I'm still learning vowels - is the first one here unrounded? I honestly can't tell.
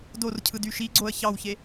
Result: no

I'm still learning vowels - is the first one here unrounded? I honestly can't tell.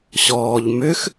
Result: no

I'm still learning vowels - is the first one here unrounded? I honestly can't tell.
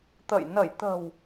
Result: yes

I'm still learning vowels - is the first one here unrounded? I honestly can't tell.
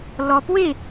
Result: no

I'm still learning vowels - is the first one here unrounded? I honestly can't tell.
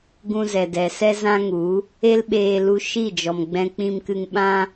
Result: no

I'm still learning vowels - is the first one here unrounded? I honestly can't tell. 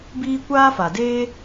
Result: yes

